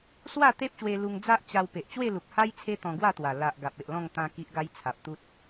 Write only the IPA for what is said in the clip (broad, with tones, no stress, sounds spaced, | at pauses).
s w a˥˧ t̪ e˦ p̚ ɕ w e˧ l u˧ ŋ d͡z a˦ ʔ t͡ɕ a˧ w p e˨ ʔ t͡ɕ w e˥˧ l u˨ k̚ h a˦ j t͡sʰ e˦ t̪ ɔ̃˧ ɡ w a˥˧ t̪ w a˨˩ l a˨ ʔ ɡ a˨ p̚ e˨ ʔ l ɔ̃˥˧ ŋ t̪ ã˧ k i˦ ʔ ɡ a˦ j t͡sʰ a˨ p̚ t̪ u˦ t̚